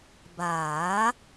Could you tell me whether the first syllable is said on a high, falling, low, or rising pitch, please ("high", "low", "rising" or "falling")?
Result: rising